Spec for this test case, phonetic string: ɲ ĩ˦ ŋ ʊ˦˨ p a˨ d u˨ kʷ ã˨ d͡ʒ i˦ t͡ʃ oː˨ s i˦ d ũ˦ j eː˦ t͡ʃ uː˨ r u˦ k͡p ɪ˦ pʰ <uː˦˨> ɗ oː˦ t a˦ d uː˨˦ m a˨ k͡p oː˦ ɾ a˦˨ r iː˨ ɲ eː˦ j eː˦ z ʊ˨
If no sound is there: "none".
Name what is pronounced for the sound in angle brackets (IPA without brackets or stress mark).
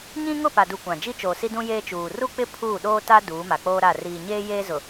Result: uː˦˨